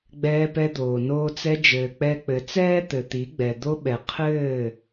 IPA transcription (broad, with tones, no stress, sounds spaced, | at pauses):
ɡ͡b ɛː˧ p ɛ˧ d̪ oː˨ n oː˧ t͡s ɛ˧ d͡ʒ ɘː˨ k͡p ɛ˧ k͡p ɘ˨ t͡s ɛː˦ t̪ ɘ˨ t̪ i˨˦ ɡ͡b ɛ˨ d̪ o˧ ɓ ɛ˨ qʰ ɘː˦˨